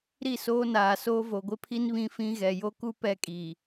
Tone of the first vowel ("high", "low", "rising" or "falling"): falling